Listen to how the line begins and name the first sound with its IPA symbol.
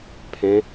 pʰ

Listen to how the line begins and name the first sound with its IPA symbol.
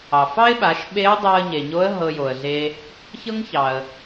ɑ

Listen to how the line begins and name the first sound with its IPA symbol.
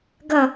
ɡ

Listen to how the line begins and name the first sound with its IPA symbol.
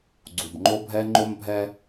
ɡ͡ǀ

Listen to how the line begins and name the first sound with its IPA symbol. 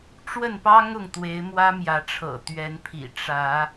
ʈ͡ʂ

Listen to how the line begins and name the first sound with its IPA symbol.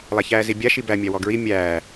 lˠ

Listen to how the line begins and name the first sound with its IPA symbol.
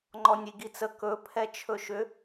ŋ͡ǃ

